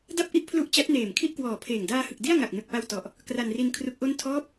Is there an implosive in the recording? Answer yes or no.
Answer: no